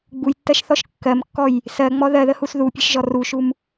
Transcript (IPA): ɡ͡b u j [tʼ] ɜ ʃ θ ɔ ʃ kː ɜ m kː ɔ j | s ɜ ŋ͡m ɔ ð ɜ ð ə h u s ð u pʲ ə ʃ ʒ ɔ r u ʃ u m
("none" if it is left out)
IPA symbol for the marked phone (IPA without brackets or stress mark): tː